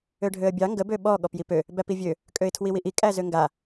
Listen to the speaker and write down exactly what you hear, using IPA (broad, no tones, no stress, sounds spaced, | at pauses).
ø ɖʱ ø ə̯ bʲ ɑ ŋ ɡ ə b ø ɓ ɔ ɠ ɔ p j i p ø | b æ p i vʲ ø | kʼ ø ɪ̯ tʰ w i w i ʔ i kʼ æ z ø ŋ ɡ a